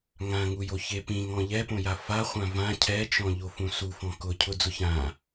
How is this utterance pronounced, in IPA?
ŋ ã ŋ u j o ç e p ĩ ŋ ɔ̃ ʎ ɛ p õ j a f a χʷ ã v ã cʰ ɛ t͡ʃ ɔ̃ ʎ o f ũ s u f ɔ̃ k ʊ cʰ ʊ d͡z ʊ ç ã

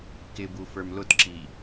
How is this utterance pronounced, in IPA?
k ɪ b u f ə˞ m l ʊ t ǁ i

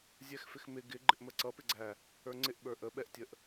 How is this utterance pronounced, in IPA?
zʲ ɛ x f ɪ x m ɪ ɡ ɪ ɡ͡ǃ ɪ ʔ m ə ǀ ʌ p ɪ ɡ͡ǀ æ | ə˞ ŋ͡ǀ ɪ ʔ ɓ ə˞ ʔ ə ɓ ɛ ʔ tʲ ə ʔ

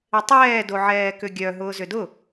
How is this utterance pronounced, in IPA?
ɪ tˤ ɛː d o ʕ ɛː k ʏ ɡʲ œ ɦ ʊː z ʏ d ʊ

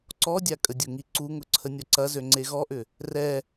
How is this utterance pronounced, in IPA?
ǀ ɔ dʲ a kʼ ə dʲ ʊ ŋ i ǀ u ŋ ʊ ǀʰ ə nʲ ɔ ǀ ɐ z ø ŋ͡ǀ e ɣ ɔ ʔ ʏ | r ɛ

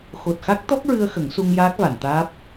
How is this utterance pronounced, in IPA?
x o˨˩ t̚ x a˦˥ k̚ t̪ ɔ˦˥ k̚ ɹ ɨ˧ ə̯ x ə˨˩˦ ŋ s u˧ ŋ j aː˦˥ k̚ v a˨˩˨ n t̪ aː˦˥ p̚

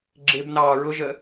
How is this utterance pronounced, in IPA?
ɡ͡ǁ ɪ b n ɑː ɹ ʊ ʒ ə

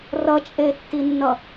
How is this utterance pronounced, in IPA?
r ʌ t͡ʃʼ e tː i nː ʌ

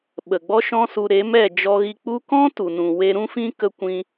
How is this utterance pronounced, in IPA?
ɓ ə˨ ɡ͡b ɔ˦ ʃ ɔ̃˦ s u˧ ɾ e˨˦ m ɛ˦˨ d͡ʒ ɔ˧ ɣ i˧ k͡p u˧ k ɔ̃˦ t u˨ n ũ˨ w e˧ ɾ ũ˦ f ĩ˦ k ə˦ kʷ ĩ˦

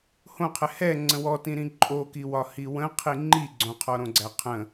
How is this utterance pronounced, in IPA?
h õ qʰ ɛ h ɛ ŋ͡ǀ ə̃ w ɔ t ĩ ɾ ĩ ǃʼ o k i w ɒ h i w ə̃ qʰ i ŋ͡ǃ i ɡ͡ǀ õ qʰ ɔ ɾ õ ɡ͡ǀ æ qʰ ə̃

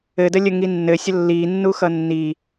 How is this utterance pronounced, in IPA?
ɘ d ə lʲ ə ŋ i nː ɘ sʲ ə lː i nː u x ʌ nː i

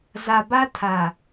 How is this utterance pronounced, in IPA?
z a˨ b a˦ tʰ a˨

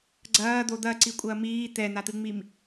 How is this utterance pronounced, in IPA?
ɡ͡ǀ ɐː d̪ o d̪ ɐ ǀ i kʷʼ ɐː m iː t̪ ɛ n̪ a t̪ ɨ ŋ͡m i m

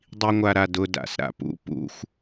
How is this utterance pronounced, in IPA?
dˤ i ŋʷ a ɾ a d ʊ d a̰ s ɾ a̰ p ṵ p ṵ xʷ

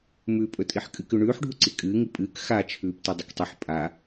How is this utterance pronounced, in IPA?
m ʉː pʼ ɵ tʼ i ħ kʼ ɨ k ʉ ɳ ʉː ħ ɖʱ u ǀ i kʼ ɨː ŋ i pʼ ɨː k x a t͡ʃʰ ʉː p t e dˤ ɨ k tˤ ɨ ħ pʼ a

